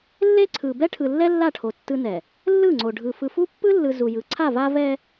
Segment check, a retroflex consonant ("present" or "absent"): present